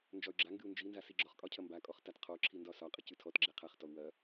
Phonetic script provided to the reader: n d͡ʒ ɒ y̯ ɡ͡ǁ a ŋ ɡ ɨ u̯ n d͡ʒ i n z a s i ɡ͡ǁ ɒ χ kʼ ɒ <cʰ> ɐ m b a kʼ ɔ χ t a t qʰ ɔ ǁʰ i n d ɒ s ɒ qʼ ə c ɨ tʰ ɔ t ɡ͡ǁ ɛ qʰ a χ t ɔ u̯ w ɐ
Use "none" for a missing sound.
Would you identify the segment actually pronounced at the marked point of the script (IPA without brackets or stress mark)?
cʰ